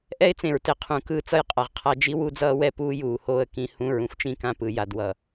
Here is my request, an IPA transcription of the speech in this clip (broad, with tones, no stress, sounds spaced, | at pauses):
ʔ ɛ˦ ɪ̯ t͡s ẽ˨ ɹ t e˨ qʰ ũ˨ k ɯː˦ t͡s ʌ˦ j qʼ a˨ ʁ qʰ a˦ d͡ʒ i˦ w u˦ d͡z ʌː˦ w ɛ˦ p uː˦ j uː˨ h oː˦˨ ə̯ k ĩ˦ h ũ˦˨ ɹ ũ˦ f t͡ʃ ĩ˦ k ã˦ p ɯ˨ j a˨ d w ʌ˨